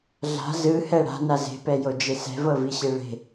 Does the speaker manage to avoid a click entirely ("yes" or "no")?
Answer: yes